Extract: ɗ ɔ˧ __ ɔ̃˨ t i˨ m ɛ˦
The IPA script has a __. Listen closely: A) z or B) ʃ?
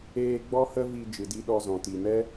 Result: A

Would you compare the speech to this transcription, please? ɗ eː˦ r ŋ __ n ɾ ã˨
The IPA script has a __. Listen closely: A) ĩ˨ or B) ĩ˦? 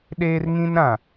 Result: B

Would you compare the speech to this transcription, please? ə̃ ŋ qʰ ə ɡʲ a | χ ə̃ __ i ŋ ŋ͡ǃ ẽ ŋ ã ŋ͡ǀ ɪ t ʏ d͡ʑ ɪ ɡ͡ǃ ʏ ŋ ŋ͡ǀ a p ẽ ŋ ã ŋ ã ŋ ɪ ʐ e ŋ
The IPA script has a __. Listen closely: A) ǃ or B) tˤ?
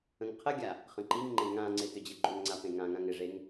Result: A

